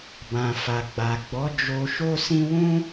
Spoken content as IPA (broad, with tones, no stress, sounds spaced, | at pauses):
b ã˨ f a˨ ɡ͡b a˨ ɡ͡b ɔ˨˦ d͡ʒ o˧ ʃ o˦ s ĩ˦ w ũ˦